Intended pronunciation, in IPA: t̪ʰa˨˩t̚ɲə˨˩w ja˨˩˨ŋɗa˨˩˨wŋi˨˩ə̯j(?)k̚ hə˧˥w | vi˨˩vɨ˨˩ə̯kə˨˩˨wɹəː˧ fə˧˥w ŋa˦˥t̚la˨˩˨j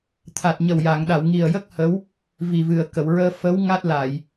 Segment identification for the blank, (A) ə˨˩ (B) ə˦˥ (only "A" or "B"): B